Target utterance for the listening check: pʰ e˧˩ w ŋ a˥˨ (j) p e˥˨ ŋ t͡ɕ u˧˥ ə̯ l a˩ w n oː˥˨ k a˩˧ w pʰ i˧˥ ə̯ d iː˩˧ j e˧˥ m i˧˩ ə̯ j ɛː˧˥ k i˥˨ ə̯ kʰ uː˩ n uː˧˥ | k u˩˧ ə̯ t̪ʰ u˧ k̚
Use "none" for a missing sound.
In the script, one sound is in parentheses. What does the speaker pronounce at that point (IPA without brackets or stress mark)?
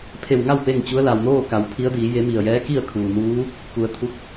w